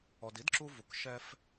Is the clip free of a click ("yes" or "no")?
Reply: no